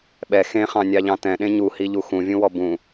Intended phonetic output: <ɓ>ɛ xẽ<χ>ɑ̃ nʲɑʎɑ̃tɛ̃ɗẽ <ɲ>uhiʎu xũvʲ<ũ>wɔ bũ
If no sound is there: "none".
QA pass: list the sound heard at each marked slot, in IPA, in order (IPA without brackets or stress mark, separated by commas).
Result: ɓ, χ, ɲ, ũ